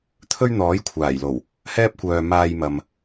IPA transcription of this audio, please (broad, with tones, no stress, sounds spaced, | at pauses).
t̪ʰ ɵ˥ ɥ n̪ ɔː˨˥ j kʷʰ aː˨˩ j l o˨˩ w | h ɛː˥ p̚ kʷ œː˨ m aː˧ j m ɐ˨ m